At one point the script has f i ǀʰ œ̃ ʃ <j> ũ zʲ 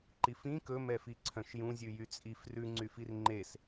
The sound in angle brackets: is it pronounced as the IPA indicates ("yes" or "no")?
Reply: yes